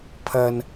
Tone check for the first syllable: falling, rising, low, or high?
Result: high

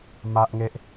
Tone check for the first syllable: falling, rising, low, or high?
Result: high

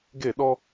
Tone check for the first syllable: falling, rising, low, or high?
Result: falling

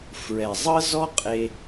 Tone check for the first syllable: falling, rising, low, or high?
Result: low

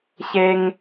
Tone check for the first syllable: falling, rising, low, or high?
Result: high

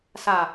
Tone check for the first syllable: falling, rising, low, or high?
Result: low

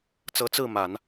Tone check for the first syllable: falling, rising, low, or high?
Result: rising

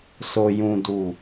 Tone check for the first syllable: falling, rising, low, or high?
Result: low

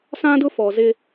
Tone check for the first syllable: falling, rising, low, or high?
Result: high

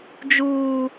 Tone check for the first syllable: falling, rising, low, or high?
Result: high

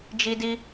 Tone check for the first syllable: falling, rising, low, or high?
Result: high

